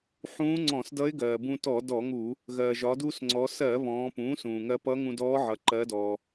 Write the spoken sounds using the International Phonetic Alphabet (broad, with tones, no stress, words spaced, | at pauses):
ħũː˧˥ŋ͡ǀɔ̃˧˩˧sdʌ˧˥ɪ̯ɡɜː˩ bũ˧tɔ˧˩˧ dɔ˧˩˧ŋu˧˩˧ | ɣɜː˩ʒɒ˩˧duː˧s ŋ͡ǀɔ˩˧sɜ˧˩˧ βɔ̃ː˩˧pũː˩˥sũː˩ ŋɜ˧pʌ˧˥ ŋũ˧dɔː˧˥ʕʌ˩˧ ǃɜ˧˥dɔː˧